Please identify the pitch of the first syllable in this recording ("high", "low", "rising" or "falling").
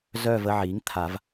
falling